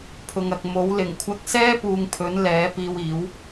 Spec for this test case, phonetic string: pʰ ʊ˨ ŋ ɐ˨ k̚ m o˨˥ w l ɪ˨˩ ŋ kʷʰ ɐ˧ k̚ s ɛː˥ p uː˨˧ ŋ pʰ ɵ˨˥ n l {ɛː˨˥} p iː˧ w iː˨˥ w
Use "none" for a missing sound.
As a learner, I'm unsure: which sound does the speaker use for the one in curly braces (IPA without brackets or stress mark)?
ɛː˨˥